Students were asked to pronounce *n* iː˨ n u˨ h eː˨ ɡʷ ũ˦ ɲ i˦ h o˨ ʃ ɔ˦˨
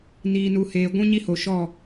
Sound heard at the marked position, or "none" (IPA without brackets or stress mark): n